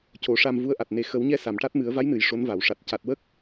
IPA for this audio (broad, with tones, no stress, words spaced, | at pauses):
co˨˩˦ʂa˧m vu˧˥ə̯ʔa˨˩t̚ ne˨˩xə˨˩˦wɲɛ˧ sa˨˩˨mʈa˦˥t̚mɨ˨˩˦ə̯ va˧˥jnɨ˨˩˨j ʂo˧˥nva˨˩˨w ʂa˨˩t̚ ca˨˩t̚wə˦˥k̚